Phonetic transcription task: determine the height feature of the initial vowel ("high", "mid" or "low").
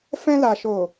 mid